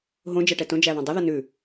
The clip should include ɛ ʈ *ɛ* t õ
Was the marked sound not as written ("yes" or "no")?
no